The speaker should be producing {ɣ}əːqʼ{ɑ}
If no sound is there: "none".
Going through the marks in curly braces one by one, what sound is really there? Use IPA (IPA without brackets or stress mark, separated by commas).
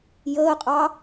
j, ɑ